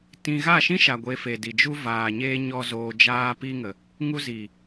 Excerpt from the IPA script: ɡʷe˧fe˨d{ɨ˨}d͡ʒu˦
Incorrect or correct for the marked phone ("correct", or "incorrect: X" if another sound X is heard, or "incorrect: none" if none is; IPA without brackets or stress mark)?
incorrect: i˨